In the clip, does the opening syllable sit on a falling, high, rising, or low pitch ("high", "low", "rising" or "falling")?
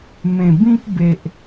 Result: low